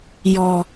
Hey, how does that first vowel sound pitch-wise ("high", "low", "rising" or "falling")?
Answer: low